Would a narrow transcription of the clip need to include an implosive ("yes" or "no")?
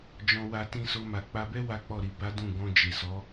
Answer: no